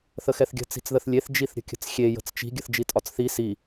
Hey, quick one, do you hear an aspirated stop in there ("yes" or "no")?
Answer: no